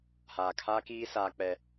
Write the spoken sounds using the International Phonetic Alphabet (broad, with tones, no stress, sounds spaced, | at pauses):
h aː˨ kʰ aː˦ k iː˦ s aː˦ k͡p ɛ˦